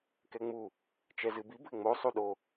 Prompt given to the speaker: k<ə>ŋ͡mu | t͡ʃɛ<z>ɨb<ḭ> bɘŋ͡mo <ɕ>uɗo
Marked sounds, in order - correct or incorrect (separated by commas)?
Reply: incorrect, correct, incorrect, incorrect